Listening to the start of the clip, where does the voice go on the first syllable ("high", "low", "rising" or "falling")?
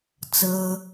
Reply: high